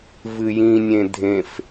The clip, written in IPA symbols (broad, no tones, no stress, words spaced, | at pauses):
vɨjĩnʲẽ dʱẽf